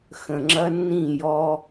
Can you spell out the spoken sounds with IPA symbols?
xə̃˨ŋ͡ǁɐ˦nːĩ˦˨jɔ˦

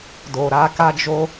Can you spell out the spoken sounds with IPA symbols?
do˨ɾa˧ka˦d͡ʒo˦

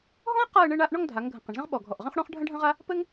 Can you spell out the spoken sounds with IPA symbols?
ɦɔ̃˥ə̯ qa˥˧ə̯ɳɘ˥˧ɳa˥˧ʔ ɳɔ˥˧ŋdʱa˩˧ŋɡʱə̃˩˧ qə̃˩˧ɳzə̃˥ʁ ɓɔ˧˩ɡʱɔ˧˩ʔʁə̃˥χ ɽɔ̃˥χɖʱə̃˥ɖʱə̃˥ʁa˥ | pɘ˥ŋ

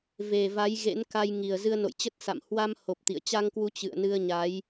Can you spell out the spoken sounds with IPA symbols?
ve˨˩va˨˦j ɣḛ˧˥nka˧jŋi˨˩ə̯ zɨ˧ə̯no̰˧˨jt͡ɕə˦˥t̚ sa̰˧˨m hwa˧m ho˨˩p̚ t̪ḭ˧˨ə̯ t͡ɕa˧ŋkwu˨˦ t͡ɕɨ̰˧˨ə̯nɨ˧ə̯ɲa˨˦j

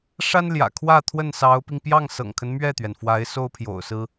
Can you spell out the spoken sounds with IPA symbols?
ʂa˥nljä̰˨˩kʰwä˥˧ t̪ʰwə˥˩nsɑ˧˥ʊ̯pi˧ŋ pjɑ˥˩ŋsɤ̰˨˩ŋkʰə˦n mɥɛ˥˩t̪ɥɛ˩nfwa˧˥ɪ̯ so˥ʊ̯pʰjo̰˨˩ʊ̯sɹ̩˥

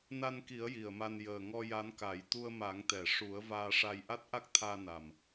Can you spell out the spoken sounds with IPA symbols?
na˧nki˨˩˦ə̯ ji˨˩ə̯ma˧n jəː˨˩ŋɔ˧ ja˧˥nka˨˩˦j t̪u˧ə̯ ma˨˩˦ŋ t̪ɛ˨˩˨ʂu˨˩˦ə̯ vaː˧ʂa˧j ʔa˦˥t̚ʔa˦˥k̚t̪ʰaː˧ na˨˩m

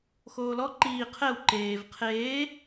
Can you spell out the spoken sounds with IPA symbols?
xoːlɔ ǃiː qʰɛw ǃeːv qʰeː

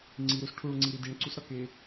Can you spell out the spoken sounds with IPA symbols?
ŋ͡ǀi ɾusʈʰuɭŋ͡ǀiɾi diɳǀusɾɒke

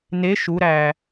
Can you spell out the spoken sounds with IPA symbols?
ne ʃuɾæː

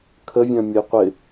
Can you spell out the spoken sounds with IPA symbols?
kʰəvʲœ̃ mʲəjqʷɪ

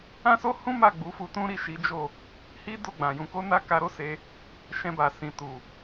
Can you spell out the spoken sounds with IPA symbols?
ã˦so˦hũ˦ma˦˨ ɡ͡bu˨˦fu˧tũ˦ɾi˦˨ ʃi˨˦d͡ʒo˦˨ | hi˦do˦˨ ɡ͡bã˨jũ˧ko˦ na˦ka˧ɾo˦ se˧ | ʃɛ̃˧ba˨sĩ˨ tu˨

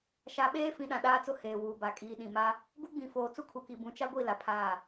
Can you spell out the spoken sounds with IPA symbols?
ʃa˨ɓeː˦fĩ˨ ɗã˨ɗaː˦t͡sʊ˦ heː˨wuː˨ba˨ kʼiː˨ɗĩ˨ma˦ | ɡu˦ɡ͡bĩ˨foː˨ t͡su˦kʰu˨ki˨ bũ˨t͡ʃa˦ɡʷi˦˨ la˨pʰaː˦˨

